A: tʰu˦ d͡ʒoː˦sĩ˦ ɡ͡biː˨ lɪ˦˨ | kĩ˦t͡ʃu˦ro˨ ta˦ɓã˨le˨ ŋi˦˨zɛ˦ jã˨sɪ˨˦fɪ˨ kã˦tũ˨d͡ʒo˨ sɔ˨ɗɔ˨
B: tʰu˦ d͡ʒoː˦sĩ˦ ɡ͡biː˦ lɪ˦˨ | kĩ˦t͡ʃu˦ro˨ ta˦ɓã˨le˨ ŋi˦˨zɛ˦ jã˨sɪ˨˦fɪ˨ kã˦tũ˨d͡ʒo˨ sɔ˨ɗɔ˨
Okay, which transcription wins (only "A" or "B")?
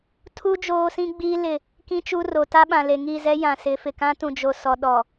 B